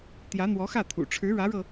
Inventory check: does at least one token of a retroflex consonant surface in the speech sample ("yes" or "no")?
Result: yes